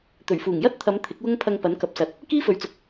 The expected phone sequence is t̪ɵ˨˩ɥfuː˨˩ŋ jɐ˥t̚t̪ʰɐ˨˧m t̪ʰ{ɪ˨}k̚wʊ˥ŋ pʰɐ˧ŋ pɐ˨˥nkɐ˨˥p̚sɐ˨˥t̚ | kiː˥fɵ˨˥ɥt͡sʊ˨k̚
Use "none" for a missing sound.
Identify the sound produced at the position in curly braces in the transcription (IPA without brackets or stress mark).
ɪ˨˥